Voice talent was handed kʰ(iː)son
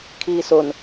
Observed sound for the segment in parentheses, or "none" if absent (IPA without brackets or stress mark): iː